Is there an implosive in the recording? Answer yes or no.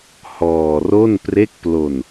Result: no